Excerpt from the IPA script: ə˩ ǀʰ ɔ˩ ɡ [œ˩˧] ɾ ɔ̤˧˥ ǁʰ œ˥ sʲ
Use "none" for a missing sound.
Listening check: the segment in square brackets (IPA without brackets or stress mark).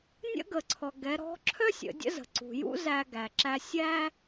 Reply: ɛ˩˧